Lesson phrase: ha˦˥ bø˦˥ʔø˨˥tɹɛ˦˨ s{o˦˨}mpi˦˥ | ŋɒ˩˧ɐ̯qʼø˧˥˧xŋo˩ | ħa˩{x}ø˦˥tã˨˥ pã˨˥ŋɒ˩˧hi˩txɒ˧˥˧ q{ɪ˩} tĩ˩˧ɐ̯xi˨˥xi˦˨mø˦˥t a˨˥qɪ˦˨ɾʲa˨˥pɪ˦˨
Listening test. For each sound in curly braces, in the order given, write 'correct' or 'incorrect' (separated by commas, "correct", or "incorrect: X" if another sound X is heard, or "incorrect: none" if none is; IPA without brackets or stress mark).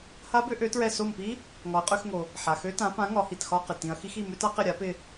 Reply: correct, correct, correct